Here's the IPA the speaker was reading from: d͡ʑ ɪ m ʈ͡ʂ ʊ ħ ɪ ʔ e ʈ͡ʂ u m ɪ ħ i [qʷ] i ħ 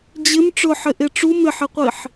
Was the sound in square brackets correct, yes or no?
yes